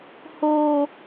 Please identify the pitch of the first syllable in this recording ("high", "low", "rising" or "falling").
high